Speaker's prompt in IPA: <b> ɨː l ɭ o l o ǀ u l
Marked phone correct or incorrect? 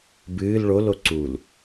correct